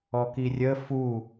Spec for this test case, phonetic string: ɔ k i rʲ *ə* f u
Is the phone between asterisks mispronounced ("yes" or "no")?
no